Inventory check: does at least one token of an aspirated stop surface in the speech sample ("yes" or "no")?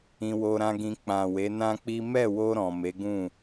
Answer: no